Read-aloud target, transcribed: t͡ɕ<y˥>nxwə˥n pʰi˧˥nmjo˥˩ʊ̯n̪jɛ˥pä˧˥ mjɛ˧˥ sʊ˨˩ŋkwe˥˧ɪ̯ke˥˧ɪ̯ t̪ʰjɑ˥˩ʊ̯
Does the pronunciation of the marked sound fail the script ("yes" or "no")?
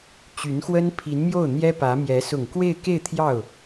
yes